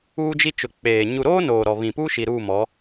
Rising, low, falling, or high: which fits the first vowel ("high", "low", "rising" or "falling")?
high